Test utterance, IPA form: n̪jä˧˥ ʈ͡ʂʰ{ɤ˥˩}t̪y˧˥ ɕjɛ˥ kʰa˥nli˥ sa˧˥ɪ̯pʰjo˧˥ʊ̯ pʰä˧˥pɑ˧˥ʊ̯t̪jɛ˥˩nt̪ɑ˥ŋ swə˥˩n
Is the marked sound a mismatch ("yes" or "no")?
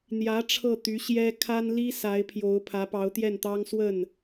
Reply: no